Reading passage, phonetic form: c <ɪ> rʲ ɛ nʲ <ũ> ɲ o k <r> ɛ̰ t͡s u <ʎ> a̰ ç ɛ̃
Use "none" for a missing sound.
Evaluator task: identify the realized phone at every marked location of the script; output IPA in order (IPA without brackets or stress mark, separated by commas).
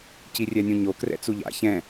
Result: i, ũ, r, ʎ